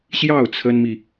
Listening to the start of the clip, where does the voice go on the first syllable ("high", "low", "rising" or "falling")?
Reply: falling